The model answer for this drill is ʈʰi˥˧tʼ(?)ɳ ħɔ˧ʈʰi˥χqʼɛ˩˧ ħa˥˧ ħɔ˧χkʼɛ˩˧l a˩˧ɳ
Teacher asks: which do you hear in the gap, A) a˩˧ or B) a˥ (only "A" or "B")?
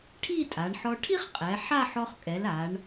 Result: A